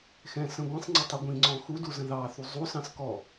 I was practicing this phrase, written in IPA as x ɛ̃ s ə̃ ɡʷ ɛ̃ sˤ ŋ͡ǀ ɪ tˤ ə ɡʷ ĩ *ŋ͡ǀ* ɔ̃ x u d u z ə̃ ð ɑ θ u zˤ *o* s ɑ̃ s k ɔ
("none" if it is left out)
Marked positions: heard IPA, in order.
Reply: ŋ͡ǀ, u

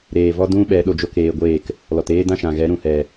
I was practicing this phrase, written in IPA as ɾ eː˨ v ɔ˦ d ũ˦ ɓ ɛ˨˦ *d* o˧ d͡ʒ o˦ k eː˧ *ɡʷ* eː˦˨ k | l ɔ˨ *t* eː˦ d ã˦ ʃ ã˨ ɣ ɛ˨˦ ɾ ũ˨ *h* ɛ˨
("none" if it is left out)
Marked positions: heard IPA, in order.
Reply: ɗ, ɡʷ, t, h

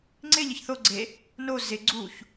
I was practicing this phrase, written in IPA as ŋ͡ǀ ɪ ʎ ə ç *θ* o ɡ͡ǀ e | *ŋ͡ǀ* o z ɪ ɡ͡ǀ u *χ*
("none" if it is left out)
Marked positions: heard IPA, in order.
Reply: θ, n, ç

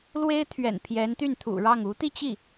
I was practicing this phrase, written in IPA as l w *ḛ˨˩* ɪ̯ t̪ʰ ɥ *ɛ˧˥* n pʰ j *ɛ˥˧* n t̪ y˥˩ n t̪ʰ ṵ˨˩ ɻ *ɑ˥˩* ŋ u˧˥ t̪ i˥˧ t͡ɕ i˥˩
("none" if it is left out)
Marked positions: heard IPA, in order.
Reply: e˥, ɛ̰˨˩, ɛ˧˥, ɑ˥˩

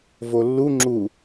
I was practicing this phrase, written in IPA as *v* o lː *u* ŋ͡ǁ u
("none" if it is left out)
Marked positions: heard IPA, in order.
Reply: v, u

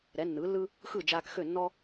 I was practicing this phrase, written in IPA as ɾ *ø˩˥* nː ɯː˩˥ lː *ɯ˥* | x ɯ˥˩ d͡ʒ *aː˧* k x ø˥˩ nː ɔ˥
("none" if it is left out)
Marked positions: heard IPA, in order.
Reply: ɛ˩˥, ɯ˥, aː˧

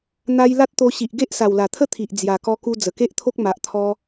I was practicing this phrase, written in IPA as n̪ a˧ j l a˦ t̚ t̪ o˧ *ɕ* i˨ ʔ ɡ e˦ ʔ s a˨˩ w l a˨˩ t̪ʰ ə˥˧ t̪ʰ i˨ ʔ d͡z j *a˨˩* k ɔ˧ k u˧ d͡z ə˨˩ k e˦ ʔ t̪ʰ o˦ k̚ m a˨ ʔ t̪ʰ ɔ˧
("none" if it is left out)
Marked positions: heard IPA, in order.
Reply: ɕ, a˨˩

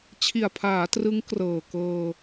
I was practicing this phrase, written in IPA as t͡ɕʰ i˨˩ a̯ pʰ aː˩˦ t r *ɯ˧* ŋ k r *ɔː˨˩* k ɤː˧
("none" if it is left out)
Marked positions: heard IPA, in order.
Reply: ɯ˦˥, ɤː˨˩

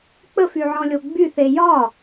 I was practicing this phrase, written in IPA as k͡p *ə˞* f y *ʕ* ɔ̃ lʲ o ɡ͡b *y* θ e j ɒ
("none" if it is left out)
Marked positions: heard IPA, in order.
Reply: ə, ʕ, y

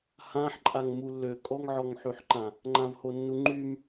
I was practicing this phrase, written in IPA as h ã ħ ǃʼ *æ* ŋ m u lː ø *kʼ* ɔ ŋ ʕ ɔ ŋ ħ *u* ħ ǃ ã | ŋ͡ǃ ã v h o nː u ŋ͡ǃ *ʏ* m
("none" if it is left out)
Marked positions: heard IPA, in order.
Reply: a, kʼ, y, y

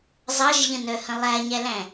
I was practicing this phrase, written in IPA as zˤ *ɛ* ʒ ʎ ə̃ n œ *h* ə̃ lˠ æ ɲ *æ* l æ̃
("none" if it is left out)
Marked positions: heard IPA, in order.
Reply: ɜ, h, æ

